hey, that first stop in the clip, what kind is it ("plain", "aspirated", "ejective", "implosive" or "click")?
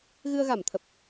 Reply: aspirated